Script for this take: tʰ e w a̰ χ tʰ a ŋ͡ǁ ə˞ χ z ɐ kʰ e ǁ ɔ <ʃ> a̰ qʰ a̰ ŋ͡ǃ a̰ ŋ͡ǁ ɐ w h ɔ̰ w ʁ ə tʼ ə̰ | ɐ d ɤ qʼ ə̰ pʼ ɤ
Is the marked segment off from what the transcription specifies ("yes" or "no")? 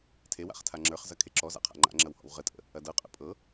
yes